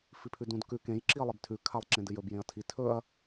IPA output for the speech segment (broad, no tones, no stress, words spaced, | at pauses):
fipʰʉdũd kʉ kẽj ǁiɐ̯lˠibtʰʉ kʰalˠǁẽdɨjɵb jẽɐ̯tʰi tʰɵɐ̯